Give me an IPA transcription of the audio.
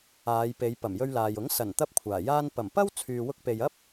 aː˨˧ j p e˨˧ j p ɐ˨˩ m j ɵ˧ ɥ l aː˨ j ʊ˨˥ ŋ s ɐ˨˩ n t̪ ɐ˥ p̚ kʷʰ aː˨˩ j aː˥ n p ɐ˨˩ m p ɐ˥ w t͡sʰ yː˨ w ʊ˧ k̚ p e˨ j ɐ˥ p̚

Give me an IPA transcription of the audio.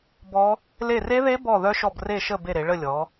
b ɔ˦˥ | l e˦˨ r e˦˥ ð e˦˥ b ɔ˦˨ ð œ˦˥ ʃ ɔ˦˨ b r e˦˨ ʃ ə˦˨ b e˦˨ ɾ e˩˧ ɭ ə˦˨ lʲ ɔ˩˧

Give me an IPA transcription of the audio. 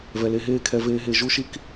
v ɛ˨ l e˧ ɦ eː˦˨ kʰ ɛ˧ v eː˧ ɦ e˧ ʒ u˦ ʃ i˦ k

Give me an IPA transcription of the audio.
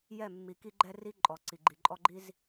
j ɛ˦˨ mː i˨ k i˦ ɡ͡ǃ ɛ˦ r i˦ ǃʼ ɔ˨ ǀ i˨ ɡ͡ǃ i˨ ǃʼ ɔ˦ ɡ͡ǃ i˦ z

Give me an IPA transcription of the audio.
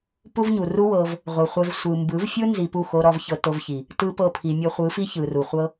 p u˦ v ɲ u˨ r u˦ w ɤ˧ v | ʁʷ ɯ˨ χʷ ɛ˧ v sʷ ɯ˨ m b ɯ˨˦ v fʲ ɯ˦ n z i˧ p u˦˨ x o˦ ɾ ɔ˦ v ç ɤ˧ t o˧ v ç i˨ | t ɯ˦ p ɤ˦˨ pʰ i˨ mʲ ɤ˧ χʷ ɯ˨˦ f i˦ ç ɯ˨ r u˨ χʷ ɤ˦

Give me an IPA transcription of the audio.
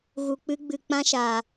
ɣ u˧ k͡p ɨ˦ ɡ͡b ɨ˧ k͡p ã˦ ʃ aː˧

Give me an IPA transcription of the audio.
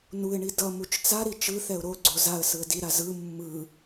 n u ɪ̯ ɳ i d ʌ m u t͡ʃ t͡s a ɾ i t͡ʃ ɯ θ ɛ ʊ̯ ɾ o ɡ͡ǀ o z a ə̯ s ɯ ə̯ d i ɾ a z ɯ mː ɯ

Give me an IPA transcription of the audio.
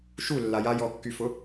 ʃ u lː a j a j ɔ kː y f ʊ

